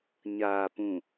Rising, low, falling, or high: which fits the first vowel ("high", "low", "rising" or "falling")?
low